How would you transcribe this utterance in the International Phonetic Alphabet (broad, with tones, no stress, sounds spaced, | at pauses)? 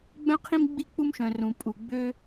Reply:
ɡ͡b œ̃˥ qʰ ĩ˥ m ɡ͡b i˥ k͡p u˥ m ʃ œ̃˩ r ũ˩ pʼ u˩ ɡ͡b ø˥